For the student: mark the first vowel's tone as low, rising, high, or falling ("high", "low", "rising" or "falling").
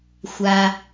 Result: low